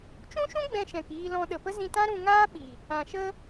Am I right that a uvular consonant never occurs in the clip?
yes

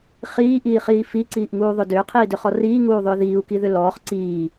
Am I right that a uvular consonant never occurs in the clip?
no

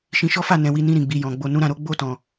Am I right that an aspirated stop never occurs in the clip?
yes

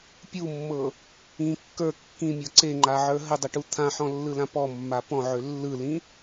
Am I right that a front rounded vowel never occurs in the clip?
no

